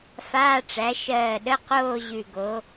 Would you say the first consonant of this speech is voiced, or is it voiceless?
voiceless